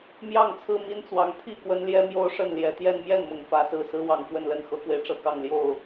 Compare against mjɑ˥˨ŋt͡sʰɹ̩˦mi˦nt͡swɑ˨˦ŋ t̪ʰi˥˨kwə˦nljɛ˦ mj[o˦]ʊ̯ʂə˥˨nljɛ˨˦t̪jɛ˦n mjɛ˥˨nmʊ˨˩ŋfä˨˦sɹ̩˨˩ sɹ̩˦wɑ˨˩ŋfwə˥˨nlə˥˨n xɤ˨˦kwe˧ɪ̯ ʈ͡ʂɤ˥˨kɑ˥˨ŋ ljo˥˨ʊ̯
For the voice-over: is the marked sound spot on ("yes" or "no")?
yes